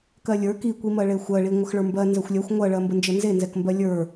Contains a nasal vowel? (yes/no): no